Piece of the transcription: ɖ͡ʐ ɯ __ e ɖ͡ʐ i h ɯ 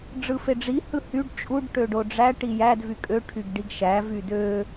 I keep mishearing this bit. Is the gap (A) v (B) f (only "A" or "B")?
B